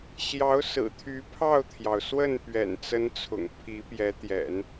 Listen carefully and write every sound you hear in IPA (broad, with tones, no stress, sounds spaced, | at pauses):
ɕ j ɑ˧˥ ʊ̯ s ɹ̩˨˩ t̪ʰ y˧˥ pʰ ɑ˥˩ ʊ̯ t̪ʰ j ɑ˩ ʊ̯ s w ə˥˩ n p ɥ ɛ̰˨˩ n t͡s ə˧˥ n t͡sʰ ʊ̰˨˩ ŋ pʰ i˧˥ p j ɛ˧˥ t̪ j ɛ̰˨˩˦ n